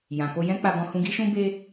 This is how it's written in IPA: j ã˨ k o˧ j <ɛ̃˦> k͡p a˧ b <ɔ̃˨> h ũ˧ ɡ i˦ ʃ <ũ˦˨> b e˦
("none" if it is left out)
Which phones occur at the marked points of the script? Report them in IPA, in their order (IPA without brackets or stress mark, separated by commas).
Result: ɛ̃˦, ɔ̃˧, ũ˦